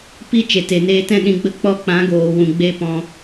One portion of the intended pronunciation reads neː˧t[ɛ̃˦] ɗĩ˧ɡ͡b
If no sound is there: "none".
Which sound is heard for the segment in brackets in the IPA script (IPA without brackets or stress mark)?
ɛ̃˦